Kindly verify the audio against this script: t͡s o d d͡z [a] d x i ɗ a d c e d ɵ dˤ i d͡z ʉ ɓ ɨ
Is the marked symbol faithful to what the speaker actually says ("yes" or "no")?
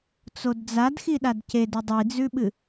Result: yes